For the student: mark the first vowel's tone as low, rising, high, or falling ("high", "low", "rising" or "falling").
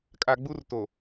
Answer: low